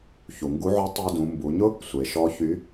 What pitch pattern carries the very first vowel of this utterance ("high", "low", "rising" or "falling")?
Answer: low